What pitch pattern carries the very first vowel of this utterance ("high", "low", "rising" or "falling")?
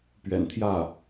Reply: low